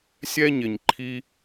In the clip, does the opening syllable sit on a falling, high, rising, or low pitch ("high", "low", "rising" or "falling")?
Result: high